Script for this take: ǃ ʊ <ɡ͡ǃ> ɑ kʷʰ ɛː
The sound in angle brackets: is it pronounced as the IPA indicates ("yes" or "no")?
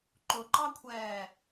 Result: no